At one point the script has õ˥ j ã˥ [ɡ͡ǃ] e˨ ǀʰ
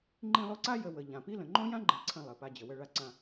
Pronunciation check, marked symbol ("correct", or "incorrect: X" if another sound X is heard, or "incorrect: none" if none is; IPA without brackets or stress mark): correct